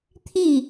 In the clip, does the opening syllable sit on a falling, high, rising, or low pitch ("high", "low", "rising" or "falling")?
falling